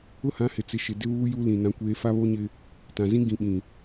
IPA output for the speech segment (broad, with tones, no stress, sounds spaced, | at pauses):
ʊ˦ h ã˨˦ h ɪ˨ t͡s ɪ˨ ʃ ɪ˨ d ɪ˦ β uː˦ j u˦ l ĩ˨ n ã˦ kʷ eː˦ f a˦ β o˦ ɲ ɪ˦ | t ã˨ z ĩ˦ ɡ ĩ˨ ɓ ĩ˨